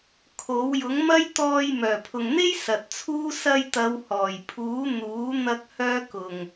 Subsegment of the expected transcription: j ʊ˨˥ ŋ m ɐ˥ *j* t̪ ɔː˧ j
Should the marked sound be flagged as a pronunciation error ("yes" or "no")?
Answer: no